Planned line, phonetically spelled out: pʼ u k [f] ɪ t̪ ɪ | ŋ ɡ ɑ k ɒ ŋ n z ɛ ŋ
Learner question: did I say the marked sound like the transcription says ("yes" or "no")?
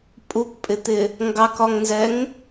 no